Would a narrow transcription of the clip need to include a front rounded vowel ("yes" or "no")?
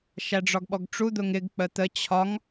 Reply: no